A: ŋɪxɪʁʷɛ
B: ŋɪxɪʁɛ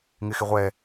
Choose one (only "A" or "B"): A